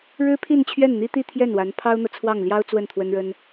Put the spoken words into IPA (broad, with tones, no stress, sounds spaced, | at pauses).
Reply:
ɻ ɻ̩˥ pʰ i˥˧ n t͡ɕʰ ɥ ɛ˥˩ n n̪ i˥ t̪ i˥˧ t̪ʰ j ɛ˥˩ n w a˧˥ n pʰ ɑ˥ ʊ̯ n̪ ɤ˨ t͡sʰ w ɑ˥˩ ŋ l j ɑ˥ ʊ̯ t͡s w ə˥˩ n t̪ʰ w ə˥ n ɻ ə˥ n